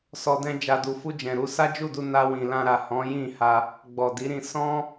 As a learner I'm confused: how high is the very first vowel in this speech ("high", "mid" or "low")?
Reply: mid